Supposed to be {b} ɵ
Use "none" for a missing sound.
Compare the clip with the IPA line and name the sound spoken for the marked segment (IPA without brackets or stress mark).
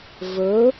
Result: v